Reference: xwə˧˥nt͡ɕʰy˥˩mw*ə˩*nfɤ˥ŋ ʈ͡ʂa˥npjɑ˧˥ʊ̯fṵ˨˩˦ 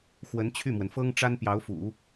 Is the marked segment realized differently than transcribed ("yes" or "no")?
no